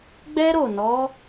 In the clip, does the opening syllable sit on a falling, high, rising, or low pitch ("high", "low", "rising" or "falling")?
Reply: high